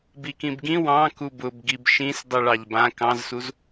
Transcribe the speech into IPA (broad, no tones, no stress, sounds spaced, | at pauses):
b i k ĩ b ɡ ĩ w ɑ̃ k u b ʊ b ɡ i b ʃ ĩ s dˤ i ɭ ɑ ʎ b ã k ɑ̃ z s u z